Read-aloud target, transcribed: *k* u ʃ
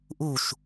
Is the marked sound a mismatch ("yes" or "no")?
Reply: yes